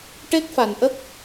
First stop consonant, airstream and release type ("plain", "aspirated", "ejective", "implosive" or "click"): plain